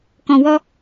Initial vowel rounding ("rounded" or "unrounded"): rounded